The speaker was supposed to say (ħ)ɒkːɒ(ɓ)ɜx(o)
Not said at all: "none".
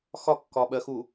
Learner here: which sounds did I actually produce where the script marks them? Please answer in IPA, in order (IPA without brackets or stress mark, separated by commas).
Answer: x, ɓ, u